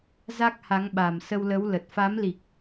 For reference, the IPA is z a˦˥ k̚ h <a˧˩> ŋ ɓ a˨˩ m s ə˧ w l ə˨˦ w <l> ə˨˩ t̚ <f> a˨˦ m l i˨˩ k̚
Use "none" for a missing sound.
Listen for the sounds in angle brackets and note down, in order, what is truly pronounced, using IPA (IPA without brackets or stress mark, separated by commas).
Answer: a˨˦, l, f